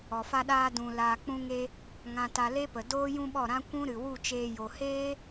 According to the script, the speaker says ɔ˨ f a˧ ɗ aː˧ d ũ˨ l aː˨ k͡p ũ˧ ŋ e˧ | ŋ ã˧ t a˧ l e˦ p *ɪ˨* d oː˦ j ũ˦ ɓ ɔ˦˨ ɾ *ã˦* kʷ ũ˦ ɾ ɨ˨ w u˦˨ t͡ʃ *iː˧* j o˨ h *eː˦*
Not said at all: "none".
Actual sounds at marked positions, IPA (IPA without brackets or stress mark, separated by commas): ə˨, ã˦, eː˧, eː˦